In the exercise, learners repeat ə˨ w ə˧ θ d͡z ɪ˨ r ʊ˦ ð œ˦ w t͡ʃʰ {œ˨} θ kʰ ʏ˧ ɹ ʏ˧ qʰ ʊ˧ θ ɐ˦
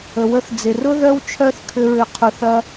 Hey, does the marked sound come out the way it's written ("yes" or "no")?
no